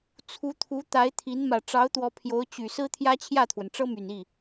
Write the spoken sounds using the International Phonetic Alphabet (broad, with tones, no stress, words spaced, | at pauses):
t͡sʰu˧˥t̪ʰu˧˥ t̪a˧˥ɪ̯t̪ʰi˧˥n mä˨˩ʈ͡ʂɑ˧˥ʊ̯t̪wɔ˧˥ pʰjo˧˥ʊ̯t͡ɕy˨˩ sɹ̩˥t̪ʰjä˥t͡ɕʰjä˥˩t̪ʰwə˩n ʈ͡ʂɤ˥my˨˩ni˥˩